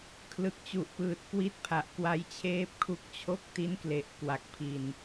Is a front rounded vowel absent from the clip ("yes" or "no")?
yes